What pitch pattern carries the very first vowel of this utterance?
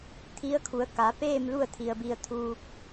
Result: rising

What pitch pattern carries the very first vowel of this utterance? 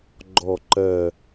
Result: falling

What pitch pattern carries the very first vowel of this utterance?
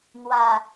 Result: low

